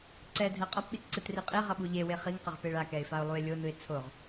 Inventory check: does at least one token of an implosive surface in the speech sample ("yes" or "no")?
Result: yes